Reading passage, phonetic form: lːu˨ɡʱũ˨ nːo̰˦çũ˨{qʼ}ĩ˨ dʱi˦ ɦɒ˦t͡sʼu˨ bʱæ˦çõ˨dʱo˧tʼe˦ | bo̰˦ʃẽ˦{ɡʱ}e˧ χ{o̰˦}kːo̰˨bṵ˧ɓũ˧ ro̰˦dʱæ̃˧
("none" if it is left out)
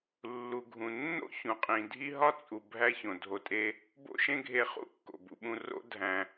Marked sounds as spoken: qʼ, ɡʱ, ṵ˦

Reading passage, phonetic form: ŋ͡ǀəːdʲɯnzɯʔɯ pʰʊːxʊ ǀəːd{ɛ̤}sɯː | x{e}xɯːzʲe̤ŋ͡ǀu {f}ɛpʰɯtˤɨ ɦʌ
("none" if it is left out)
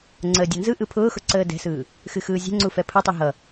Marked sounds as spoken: ɛ̤, ɨ, f

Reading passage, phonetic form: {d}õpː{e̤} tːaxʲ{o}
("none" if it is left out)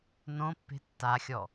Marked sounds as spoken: n, e̤, ɔ

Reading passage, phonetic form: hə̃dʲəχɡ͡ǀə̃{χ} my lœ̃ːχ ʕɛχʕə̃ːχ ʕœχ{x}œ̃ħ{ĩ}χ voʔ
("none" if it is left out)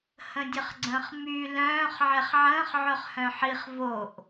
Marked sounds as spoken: χ, h, i

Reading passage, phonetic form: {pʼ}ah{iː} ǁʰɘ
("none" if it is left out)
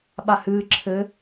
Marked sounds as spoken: ɓ, ɨː

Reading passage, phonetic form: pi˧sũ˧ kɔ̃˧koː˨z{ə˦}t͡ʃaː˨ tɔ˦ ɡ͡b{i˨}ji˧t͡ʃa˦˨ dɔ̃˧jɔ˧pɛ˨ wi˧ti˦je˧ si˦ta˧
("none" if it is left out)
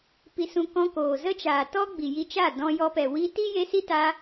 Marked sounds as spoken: ə˦, i˨

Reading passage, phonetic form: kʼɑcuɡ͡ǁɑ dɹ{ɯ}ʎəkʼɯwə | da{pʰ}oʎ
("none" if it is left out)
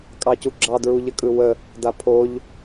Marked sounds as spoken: u, pʰ

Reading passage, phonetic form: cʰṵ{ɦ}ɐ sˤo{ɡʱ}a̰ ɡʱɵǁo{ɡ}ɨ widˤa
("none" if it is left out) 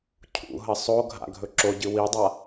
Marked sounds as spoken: ɦ, ɡʱ, ɟ

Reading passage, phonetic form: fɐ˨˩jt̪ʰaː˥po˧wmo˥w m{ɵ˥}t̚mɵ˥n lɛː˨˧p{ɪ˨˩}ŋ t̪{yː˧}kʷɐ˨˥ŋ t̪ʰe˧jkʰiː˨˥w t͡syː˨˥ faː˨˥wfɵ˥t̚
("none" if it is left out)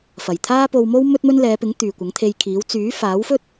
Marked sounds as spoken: ɵ˥, ɪ˨˥, yː˨

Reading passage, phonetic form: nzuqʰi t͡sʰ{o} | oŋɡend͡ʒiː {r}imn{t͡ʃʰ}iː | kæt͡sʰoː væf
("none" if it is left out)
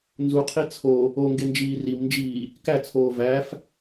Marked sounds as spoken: o, r, d͡ʒ

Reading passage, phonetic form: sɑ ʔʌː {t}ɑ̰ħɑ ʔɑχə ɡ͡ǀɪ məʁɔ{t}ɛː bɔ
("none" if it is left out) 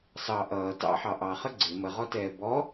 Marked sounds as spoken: t, t

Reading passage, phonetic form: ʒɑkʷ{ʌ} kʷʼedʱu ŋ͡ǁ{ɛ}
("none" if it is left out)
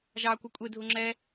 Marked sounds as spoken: ʌ, ɛ

